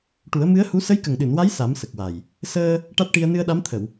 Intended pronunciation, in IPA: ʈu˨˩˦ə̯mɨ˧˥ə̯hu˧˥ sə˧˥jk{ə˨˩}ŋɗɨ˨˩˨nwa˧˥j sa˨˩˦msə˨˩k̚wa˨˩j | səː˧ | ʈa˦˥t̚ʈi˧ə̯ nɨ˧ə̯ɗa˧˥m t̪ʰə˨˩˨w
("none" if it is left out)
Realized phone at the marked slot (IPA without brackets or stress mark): ə˨˩